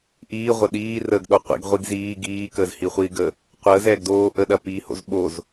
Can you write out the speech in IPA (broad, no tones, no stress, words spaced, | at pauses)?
ʔiː ʁʷɐɗiː rəːɡɗoqʷḭɡ ʁʷiɡziː ɡiː kəːzhiχʷiːɡə | qʷəːz ɛːɡdoː ʔəɗɐpiː ho̰zɓoz